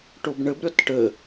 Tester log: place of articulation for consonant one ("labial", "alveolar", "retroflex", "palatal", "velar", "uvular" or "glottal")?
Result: retroflex